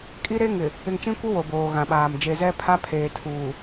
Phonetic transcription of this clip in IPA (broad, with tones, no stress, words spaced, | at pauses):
kʼi˦ɾe˦ ŋɪ˨ | ɪ˨ŋt͡ʃĩ˦kʷɪ˦ wo˨boː˨ɣã˨ɓaː˨m d͡ʒe˨zɛ˦pʰa˦pʰeː˨ tʰuː˨